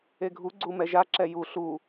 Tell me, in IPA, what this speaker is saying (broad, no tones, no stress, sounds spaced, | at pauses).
e ɡʱ u ɡ͡ǀ u m ɛ ʒ a ǁ ɛ j u ɬ u